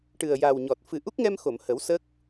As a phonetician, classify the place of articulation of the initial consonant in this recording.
retroflex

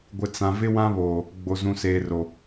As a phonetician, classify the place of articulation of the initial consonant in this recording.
velar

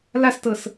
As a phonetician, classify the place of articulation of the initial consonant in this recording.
alveolar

